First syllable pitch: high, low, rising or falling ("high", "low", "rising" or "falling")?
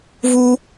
high